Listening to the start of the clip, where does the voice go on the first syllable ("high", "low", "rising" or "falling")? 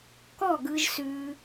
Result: falling